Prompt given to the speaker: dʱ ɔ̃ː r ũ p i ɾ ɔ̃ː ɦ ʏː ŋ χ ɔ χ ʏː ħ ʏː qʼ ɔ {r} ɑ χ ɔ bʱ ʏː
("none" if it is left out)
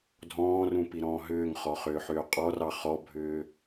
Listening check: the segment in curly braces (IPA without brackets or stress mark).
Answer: r